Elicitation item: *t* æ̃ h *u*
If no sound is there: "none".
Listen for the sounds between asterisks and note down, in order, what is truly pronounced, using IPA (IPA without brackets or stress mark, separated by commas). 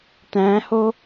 t, o